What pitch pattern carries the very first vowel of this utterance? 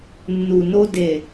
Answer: low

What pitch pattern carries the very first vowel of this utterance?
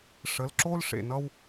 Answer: rising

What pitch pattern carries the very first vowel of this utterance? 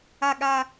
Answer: low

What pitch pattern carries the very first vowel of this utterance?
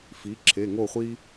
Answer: rising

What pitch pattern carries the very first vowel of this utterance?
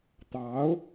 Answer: rising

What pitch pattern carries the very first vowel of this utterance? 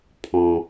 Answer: low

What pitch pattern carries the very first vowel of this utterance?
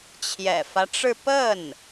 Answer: low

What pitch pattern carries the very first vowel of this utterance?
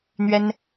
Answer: high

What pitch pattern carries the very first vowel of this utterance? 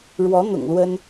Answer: rising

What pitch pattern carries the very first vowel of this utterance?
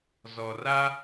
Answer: low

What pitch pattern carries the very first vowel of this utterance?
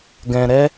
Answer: low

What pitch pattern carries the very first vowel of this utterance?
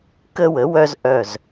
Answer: high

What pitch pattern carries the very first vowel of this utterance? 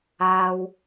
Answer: low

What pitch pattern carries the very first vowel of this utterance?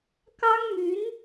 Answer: high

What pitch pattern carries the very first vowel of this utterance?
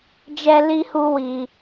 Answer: high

